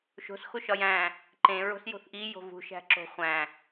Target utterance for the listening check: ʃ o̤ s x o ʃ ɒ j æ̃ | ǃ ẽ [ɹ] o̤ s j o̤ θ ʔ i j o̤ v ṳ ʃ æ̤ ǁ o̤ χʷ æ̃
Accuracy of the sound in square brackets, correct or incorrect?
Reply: correct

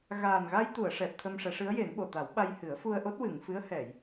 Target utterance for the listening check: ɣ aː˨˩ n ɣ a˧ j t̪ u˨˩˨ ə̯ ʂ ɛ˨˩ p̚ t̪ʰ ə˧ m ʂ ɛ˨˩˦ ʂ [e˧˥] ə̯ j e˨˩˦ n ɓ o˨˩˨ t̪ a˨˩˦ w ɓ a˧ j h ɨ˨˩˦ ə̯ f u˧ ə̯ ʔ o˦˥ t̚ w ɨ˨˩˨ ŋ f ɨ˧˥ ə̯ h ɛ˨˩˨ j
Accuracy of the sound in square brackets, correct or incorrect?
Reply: incorrect: ɨ˧˥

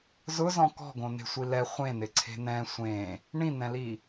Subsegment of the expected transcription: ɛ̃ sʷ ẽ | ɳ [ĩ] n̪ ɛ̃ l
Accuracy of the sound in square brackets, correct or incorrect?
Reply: correct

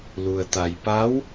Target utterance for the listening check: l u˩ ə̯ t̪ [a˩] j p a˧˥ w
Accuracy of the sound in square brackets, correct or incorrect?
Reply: correct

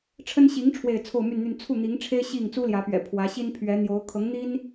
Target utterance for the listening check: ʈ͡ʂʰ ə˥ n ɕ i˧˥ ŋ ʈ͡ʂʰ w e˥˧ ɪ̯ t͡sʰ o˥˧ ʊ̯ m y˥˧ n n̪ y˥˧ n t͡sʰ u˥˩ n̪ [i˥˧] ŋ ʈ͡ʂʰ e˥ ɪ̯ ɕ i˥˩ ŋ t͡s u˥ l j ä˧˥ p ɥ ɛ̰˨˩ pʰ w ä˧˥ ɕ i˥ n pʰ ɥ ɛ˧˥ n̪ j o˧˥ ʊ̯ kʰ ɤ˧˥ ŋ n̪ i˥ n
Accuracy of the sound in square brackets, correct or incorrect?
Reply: incorrect: i˧˥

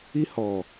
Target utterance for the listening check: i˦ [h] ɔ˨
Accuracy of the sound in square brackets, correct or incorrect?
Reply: correct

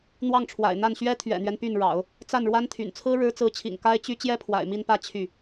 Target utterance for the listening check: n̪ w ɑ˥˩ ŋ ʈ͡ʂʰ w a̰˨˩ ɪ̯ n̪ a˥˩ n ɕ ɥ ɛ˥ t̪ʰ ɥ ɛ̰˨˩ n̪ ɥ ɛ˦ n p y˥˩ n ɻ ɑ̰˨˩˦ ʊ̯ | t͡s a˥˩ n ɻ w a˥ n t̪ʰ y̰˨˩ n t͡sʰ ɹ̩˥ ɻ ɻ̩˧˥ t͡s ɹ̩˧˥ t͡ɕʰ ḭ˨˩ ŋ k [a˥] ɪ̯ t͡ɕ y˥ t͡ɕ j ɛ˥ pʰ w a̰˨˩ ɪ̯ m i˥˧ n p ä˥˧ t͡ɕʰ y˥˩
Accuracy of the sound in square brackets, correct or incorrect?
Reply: correct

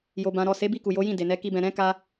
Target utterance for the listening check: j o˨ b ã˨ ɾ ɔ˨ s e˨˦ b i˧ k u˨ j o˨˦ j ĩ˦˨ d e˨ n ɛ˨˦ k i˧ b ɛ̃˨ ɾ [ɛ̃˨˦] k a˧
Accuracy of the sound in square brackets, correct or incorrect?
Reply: correct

